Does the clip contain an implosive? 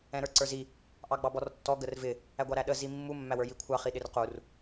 yes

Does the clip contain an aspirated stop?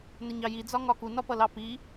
no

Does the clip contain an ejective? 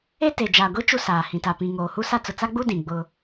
no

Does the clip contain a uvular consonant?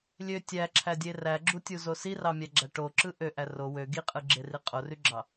yes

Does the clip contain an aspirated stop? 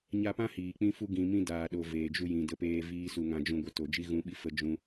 no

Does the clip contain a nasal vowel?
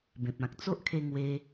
yes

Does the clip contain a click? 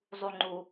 yes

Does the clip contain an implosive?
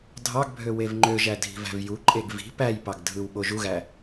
yes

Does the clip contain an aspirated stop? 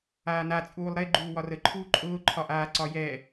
yes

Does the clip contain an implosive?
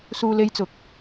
no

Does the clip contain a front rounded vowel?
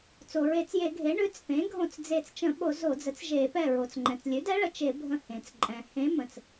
no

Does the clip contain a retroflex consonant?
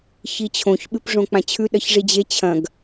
yes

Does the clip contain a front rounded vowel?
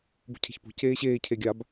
no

